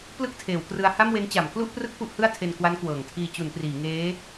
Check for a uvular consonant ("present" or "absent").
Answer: absent